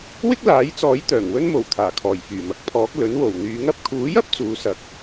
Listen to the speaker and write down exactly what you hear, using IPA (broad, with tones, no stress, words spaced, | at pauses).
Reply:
wɪ˥k̚laː˨˥jt͡sɔː˨˥j t̪œː˨˩ŋwɵ˥nmo˨˩w t̪ʰaː˨˩kʰɔː˨˩j fyː˨˩mɐ˨k̚ pʰɔː˨˥k̚ lɵ˨˥nwo˨˩wn̪yː˨˥ŋ ɐ˨˥p̚kʰuː˨˥jɐ˥p̚ t͡suː˨˥sɐ˨˥k̚